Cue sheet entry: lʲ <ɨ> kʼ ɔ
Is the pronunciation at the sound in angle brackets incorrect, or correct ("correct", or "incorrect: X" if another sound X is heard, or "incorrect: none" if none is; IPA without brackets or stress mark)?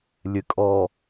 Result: correct